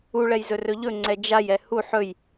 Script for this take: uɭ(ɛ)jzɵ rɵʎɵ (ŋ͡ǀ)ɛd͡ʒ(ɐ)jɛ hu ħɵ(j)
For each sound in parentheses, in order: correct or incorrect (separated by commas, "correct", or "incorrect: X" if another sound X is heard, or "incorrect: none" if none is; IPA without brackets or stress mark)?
correct, correct, incorrect: a, correct